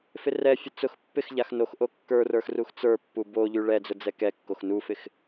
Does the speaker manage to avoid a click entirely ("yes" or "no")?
yes